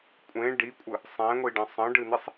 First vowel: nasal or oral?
nasal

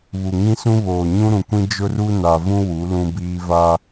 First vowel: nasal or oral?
oral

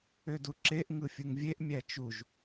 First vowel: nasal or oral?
oral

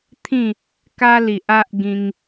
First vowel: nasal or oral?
nasal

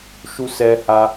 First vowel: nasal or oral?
oral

